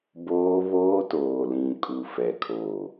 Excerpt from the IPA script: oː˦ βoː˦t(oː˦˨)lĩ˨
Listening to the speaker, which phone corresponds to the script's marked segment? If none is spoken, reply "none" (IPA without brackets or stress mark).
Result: oː˨